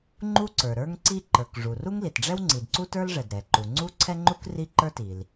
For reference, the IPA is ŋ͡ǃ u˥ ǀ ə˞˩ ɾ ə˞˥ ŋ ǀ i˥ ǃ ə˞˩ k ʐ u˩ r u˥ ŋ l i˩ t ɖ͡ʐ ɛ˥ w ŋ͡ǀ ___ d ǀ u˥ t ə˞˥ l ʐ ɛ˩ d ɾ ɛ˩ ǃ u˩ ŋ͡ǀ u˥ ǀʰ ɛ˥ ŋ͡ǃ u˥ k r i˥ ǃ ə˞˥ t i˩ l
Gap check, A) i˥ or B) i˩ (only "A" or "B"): B